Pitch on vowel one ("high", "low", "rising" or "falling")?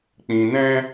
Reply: low